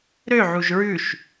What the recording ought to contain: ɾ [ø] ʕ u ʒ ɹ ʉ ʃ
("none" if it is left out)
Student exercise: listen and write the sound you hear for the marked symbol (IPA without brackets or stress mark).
ø